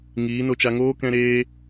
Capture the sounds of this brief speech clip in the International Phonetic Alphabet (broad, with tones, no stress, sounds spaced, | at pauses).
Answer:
ŋ iː˨˦ n o˧ t͡ʃ a˧ ŋ oː˦ k ɛ̃˦ ɾ eː˦